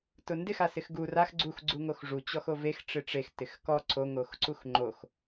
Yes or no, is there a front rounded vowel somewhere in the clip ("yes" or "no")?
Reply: no